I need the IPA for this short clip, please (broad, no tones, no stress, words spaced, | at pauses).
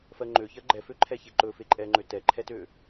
fɜŋ͡ǃø çɜɡ͡ǃɛføǃʰɛ çeǃɵ feǃʼɛŋ͡ǃø tɛǃʰɛtø